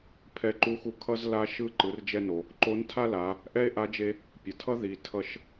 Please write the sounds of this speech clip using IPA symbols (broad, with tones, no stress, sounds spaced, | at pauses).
pʰ ɛ˧ ǃ u˧˥ x u˧ kʰ ʌ˥ z l a˥ ʃ ɯ˥ ǃ ɯ˩˧ r d͡ʒ ɛ˧ n o˩ | ǃ o˧˥ n tʰ a˥ l a˩˧ | ʔ ɛ˥ e̯ ʔ a˧˥ d͡ʒ e˧ | pʲ ʌ˩ tʰ ʌ˥ ð i˩˧ tʰ ʌ˧ ʃ